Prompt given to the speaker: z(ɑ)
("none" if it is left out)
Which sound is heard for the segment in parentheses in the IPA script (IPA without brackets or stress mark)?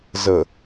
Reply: ə